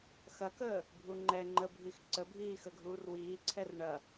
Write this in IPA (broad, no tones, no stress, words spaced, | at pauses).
xɐkəː | bʱuŋ͡ǃɛ ŋ͡ǃəbʱix ǀəbʱiːxəɡʱuːr wiːǀʰɛr ɳɐ